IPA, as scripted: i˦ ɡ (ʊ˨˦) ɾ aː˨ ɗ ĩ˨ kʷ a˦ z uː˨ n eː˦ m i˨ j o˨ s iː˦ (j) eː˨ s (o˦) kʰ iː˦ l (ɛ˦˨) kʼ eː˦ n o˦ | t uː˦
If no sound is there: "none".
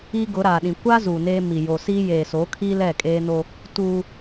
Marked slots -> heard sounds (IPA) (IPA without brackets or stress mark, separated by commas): ʊ˨˦, j, o˨˦, ɛ˦˨